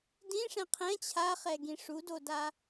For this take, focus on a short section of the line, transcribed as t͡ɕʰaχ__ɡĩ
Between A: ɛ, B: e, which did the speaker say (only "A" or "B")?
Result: A